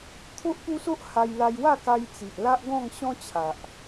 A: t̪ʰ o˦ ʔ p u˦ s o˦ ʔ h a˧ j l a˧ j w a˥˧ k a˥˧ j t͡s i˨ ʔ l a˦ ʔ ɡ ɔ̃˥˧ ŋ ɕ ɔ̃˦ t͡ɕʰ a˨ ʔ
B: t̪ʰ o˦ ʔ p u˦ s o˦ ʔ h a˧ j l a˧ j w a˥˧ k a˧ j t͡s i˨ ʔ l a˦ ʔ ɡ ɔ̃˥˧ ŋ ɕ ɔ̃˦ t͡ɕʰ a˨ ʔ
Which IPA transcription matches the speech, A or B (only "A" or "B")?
B